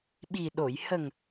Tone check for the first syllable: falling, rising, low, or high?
low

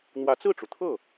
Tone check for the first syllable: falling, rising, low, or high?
rising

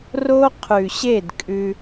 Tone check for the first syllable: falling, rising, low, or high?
high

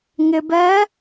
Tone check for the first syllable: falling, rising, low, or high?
low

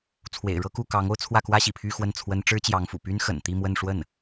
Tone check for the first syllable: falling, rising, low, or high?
low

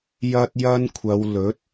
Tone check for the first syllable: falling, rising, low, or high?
high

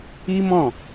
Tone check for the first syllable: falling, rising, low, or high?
high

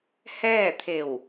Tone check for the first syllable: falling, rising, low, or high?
falling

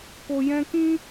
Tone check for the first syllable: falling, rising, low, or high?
low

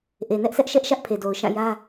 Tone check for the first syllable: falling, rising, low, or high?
low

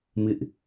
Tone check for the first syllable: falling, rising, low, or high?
high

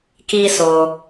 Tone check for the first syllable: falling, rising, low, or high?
high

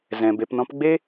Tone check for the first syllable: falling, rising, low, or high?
low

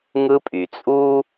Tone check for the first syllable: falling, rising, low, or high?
high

